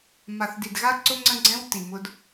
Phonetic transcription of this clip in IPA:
m a˨ θ d i˨ d ɣ a˦ ǀ ʊ˦ ŋ͡ǀ ə̃˦ ɡ͡ǀ ɛ̃˦ w t i˨ m ʊ˦ d

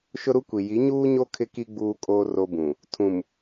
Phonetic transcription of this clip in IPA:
ʃ ʊ˦ ɾ u˦ kʷ i˨ j i˨˦ ɲ uː˦ ɲ o˦ kʰ ɪ˦ k i˦ ɡ͡b uː˦ kʼ oː˦ r o˦ b ũ˨ | tʰ ũ˨ m

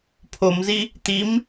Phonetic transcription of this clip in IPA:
pʰ o m z i | t̪ i m

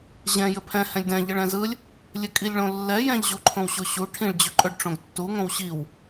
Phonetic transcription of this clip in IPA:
ʑ ɛ̃ j ɘ pʰ ɛ̃ h ɛ̃ lʲ d ɛ̃ ʎ ɘ ɭ ɛ̃ z ɯ lʲ | lʲ ɘ kʼ i lʲ ɭ õ lː ɛ j ɛ̃ ʎ ʑ u ǃʰ õ w ɕ o ɕ u ʈʰ ĩ ɭ d͡ʑ ɵ ǃʼ ɵ ɖ ʈ͡ʂ õ ɡ tː u ŋ õ w ɕ i w

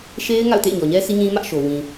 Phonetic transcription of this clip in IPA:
ʃ e˦ ɪ̯ ŋ a̰˦˨ ʊ̯ t ḛ˦˨ ɪ̯ ɲ ɔ˨ ɲ ɛ˦ sʰ i˦ ɲ ĩ˦ m ä˦ ʔ ʃ o˨ w ĩ˨

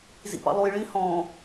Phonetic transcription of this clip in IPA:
z ḭ p ɑ̰ lˠ u j ɭ ĩ h ɔ̃

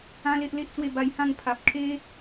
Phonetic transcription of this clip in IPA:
ã˦ l e˦ ʔ l e˦ ʔ t͡s w e˥˧ b a˧ j h ã˥˧ ŋ pʰ a˨ p̚ kʰ e˦

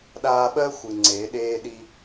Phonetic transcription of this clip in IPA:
ɗ aː˧ ɓ ɜ˥ xʷ ɨ˩ ŋ͡ǀ eː˩˧ ɗ eː˧ ɗ i˧

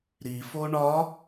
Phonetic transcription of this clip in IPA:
ɾ i f o ɳ ɒ

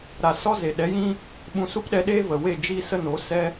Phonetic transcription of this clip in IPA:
ɾ a˨ s ɔ˦ z e˨ ɗ ɛ˨˦ j ĩ˦ | ɓ ũ˧ s u˦ p ɗ ɛ˧ ɗ eː˦ v ə˨ w e˦˨ d͡ʒ i˦ s ə˦ n o˨˦ s ɛ˦

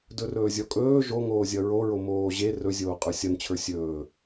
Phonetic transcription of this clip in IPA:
d ɵ r ɵː zʲ ɔ kʼ ɵː ʒ o ŋ oː zʲ ʌ ɹ o ɹ o m oː ʑ e r ɵ zʲ oː qʼ ə˞ sʲ ʌ n t͡ɕʰ ə˞ sʲ ɵː

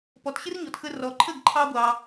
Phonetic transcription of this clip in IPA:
p ɔ˩ t ɕ ɪ˥ r ɲ ɔ˩ t x ə˧ r ɔ˩ ǃʰ ə˥˩ ɡ ǃʰ ɑ˥ ɡʷ ɑ˩

